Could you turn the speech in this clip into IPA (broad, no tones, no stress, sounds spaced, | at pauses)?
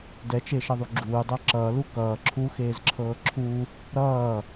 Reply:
d ɛ t͡ʃ e ʃ ʌ ðˤ u ɡ͡ǁ uː dˤ ɤ ǁ ʌː l u k ʌː ǁʰ u x eː z ǁʰ ɤː ǁʰ u | ɾ ʌː